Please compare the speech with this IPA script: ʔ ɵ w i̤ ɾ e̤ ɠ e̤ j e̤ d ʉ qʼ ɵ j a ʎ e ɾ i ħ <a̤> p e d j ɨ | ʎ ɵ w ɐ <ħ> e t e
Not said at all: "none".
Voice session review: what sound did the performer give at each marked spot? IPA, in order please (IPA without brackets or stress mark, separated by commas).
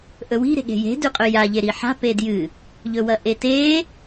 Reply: a̤, ʔ